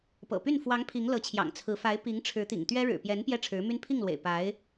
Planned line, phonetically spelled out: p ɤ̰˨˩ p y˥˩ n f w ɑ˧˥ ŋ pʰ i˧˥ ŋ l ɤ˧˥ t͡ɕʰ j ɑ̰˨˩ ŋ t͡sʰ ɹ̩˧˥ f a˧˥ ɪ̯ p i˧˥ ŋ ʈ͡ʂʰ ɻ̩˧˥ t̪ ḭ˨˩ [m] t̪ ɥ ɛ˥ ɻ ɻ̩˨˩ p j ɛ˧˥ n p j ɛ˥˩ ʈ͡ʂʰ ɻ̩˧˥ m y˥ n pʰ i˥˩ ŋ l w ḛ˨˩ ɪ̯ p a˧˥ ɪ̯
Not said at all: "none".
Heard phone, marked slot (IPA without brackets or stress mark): ŋ